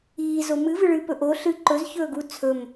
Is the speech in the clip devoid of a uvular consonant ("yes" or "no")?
yes